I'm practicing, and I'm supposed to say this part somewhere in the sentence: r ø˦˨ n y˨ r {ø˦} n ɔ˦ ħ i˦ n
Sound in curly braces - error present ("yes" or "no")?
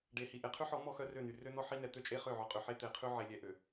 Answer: no